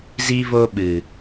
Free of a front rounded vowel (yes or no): yes